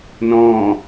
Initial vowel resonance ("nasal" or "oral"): nasal